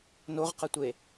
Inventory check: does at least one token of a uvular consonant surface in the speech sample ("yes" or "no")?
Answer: yes